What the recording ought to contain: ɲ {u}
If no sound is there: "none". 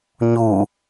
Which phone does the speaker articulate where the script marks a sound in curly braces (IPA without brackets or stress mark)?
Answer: u